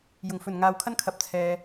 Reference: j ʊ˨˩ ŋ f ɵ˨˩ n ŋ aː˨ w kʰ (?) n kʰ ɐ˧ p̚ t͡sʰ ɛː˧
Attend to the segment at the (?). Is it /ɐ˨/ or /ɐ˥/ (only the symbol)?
ɐ˥